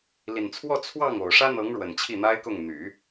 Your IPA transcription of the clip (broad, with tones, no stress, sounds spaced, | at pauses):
l i˨˩ n t͡sʰ w ɔ˥˧ t͡sʰ w ɑ˥˩ ŋ o˨˩ ʊ̯ ʂ ä˥ n̪ ɤ˧˥ ŋ ɻ w ə˨˩ n t͡ɕʰ i˥˩ n̪ a˥ ɪ̯ k ʊ˥˩ ŋ n̪ y˨˩˦